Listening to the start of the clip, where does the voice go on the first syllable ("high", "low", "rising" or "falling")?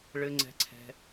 high